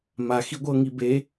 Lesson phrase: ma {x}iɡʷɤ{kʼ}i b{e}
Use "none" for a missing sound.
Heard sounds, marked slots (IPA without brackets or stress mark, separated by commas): x, ŋ, e